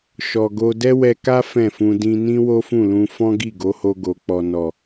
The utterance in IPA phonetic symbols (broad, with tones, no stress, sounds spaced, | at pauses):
ʃ ɔ˨ ɡ o˧ d ɛ˦ w ɛ˧ k a˦ f ɛ̃˦˨ f ũ˧ d ĩ˧ n ĩ˦ w o˦ f ũ˦˨ l ũ˧ f ɔ̃˦ ɡ i˦˨ ɡ o˨˦ h o˧ ɡ o˨ k͡p ɔ˨ n ɔ˨